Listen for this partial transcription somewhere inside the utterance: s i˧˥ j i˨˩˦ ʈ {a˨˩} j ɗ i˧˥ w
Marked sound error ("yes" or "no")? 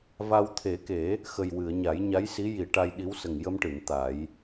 yes